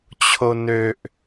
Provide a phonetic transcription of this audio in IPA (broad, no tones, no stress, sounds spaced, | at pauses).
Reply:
t͡ɕʰ o n ø ʔ